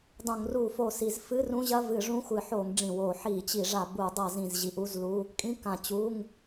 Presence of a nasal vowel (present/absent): present